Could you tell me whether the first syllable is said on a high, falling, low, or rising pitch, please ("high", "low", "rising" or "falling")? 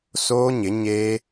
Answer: high